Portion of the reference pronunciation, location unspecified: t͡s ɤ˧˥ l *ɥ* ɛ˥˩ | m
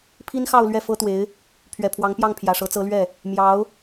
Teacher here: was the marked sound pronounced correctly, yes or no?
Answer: yes